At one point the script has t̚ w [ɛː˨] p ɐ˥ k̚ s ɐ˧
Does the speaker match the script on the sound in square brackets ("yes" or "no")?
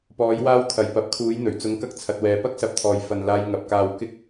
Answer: yes